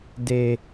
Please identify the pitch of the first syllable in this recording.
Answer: low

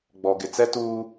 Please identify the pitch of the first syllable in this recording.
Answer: low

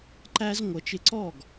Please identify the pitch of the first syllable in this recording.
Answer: high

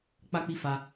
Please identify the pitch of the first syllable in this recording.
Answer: high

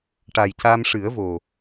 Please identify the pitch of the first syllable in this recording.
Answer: low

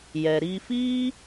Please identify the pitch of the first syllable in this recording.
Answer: low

